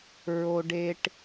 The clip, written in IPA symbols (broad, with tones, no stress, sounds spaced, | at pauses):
ɹ o˧ ɖ e˧ ʈ